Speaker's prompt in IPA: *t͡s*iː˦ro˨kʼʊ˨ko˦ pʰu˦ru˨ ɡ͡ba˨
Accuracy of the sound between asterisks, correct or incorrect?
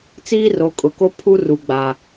correct